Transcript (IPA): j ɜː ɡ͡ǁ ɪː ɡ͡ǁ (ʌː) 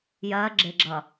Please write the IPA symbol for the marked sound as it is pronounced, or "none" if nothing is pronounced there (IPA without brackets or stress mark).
ʌː